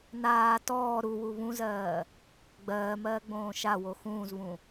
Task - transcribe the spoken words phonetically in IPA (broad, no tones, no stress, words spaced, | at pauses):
naː tɔː ɾuwu βũzɜː | ɡ͡bɜːmɜːɡ͡bõː ʃawo xũːzβũ